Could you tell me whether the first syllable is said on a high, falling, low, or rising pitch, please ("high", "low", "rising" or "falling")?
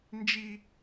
high